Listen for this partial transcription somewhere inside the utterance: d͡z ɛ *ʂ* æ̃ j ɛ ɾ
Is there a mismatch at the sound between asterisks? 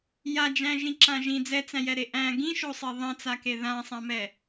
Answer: yes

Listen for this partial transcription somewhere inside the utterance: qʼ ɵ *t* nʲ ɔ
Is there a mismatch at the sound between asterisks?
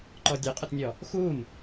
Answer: no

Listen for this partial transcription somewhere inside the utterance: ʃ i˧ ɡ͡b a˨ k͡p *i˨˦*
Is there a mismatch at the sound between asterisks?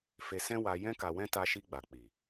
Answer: yes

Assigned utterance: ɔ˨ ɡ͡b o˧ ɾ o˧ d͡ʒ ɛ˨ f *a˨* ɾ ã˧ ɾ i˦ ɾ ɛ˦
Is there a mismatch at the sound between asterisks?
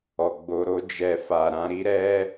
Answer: no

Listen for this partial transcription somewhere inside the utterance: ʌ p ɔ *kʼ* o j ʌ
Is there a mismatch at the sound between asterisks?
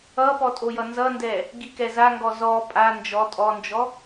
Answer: yes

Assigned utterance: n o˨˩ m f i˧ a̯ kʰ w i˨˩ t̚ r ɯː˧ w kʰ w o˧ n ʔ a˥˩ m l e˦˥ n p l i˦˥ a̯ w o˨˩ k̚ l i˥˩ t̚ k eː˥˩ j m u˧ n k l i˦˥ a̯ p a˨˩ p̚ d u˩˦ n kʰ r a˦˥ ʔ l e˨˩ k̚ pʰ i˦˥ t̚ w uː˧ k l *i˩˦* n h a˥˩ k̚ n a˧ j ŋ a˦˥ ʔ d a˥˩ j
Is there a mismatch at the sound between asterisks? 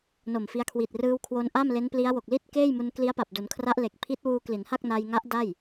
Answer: no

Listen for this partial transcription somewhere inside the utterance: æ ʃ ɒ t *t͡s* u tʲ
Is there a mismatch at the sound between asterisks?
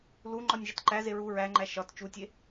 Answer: yes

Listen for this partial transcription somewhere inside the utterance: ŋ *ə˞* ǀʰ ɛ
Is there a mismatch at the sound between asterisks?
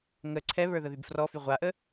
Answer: yes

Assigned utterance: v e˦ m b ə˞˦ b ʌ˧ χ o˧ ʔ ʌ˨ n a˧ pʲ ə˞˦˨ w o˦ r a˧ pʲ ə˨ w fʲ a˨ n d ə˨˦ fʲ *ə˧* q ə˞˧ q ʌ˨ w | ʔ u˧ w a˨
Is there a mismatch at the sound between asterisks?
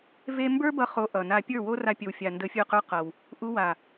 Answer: yes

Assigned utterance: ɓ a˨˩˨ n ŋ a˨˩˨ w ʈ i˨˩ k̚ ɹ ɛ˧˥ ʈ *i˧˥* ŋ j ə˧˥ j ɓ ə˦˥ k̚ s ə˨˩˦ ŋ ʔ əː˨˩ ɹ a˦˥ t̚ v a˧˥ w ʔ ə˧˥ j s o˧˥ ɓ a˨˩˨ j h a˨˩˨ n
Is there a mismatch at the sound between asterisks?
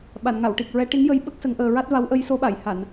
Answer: no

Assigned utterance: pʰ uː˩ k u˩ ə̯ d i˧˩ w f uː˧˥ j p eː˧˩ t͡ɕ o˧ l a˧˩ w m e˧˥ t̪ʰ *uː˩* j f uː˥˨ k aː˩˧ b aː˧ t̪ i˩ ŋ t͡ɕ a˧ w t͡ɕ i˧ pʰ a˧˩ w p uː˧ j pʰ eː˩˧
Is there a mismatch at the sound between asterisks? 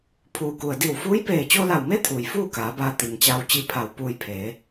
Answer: no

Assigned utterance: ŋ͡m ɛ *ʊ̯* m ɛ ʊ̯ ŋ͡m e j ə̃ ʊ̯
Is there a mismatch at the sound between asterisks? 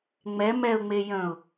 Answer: yes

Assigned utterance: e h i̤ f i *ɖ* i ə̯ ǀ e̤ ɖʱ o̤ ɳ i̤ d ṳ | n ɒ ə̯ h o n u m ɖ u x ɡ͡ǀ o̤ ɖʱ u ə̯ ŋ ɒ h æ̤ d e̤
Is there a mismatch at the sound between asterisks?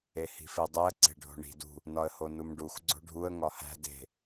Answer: yes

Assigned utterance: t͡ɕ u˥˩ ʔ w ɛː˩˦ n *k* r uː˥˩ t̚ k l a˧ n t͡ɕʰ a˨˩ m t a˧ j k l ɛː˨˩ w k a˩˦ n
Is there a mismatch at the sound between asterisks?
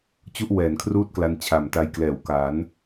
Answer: yes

